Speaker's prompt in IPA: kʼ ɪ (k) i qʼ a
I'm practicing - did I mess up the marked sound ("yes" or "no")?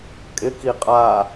no